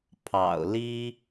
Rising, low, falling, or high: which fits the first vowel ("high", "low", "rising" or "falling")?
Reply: low